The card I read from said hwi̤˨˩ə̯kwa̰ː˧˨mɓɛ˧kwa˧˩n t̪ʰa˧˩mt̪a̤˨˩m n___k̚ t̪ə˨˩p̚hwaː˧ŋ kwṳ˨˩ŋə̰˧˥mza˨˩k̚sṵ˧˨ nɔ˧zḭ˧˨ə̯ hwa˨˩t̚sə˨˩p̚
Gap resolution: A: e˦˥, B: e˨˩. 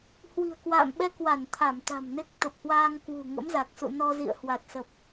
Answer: A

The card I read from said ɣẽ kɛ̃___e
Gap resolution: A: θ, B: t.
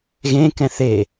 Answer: A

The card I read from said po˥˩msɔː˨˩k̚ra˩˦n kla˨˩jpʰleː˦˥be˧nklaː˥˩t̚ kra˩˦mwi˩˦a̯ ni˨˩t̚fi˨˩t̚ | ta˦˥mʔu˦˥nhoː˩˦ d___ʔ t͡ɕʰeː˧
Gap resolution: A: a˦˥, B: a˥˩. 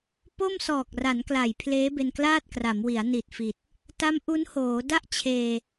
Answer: B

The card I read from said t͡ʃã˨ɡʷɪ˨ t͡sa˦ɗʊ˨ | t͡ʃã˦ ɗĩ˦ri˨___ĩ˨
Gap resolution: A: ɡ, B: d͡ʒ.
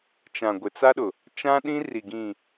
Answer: A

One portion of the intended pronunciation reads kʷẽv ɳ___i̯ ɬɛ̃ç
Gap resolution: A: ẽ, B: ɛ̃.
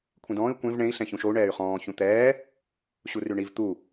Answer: A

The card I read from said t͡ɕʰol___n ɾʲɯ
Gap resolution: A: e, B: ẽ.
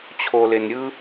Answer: A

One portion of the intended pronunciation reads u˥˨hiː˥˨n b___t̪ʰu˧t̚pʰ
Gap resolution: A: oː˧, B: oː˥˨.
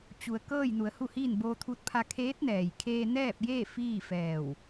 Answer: A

